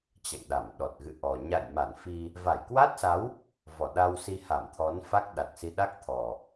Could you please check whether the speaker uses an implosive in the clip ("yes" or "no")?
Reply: yes